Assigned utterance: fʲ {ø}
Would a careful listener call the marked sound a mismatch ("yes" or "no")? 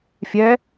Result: yes